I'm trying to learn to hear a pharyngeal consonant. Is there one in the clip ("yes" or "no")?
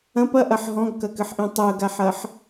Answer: yes